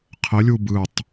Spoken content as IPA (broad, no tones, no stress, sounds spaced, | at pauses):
qʰ ə lʲ u b ɯ tˤ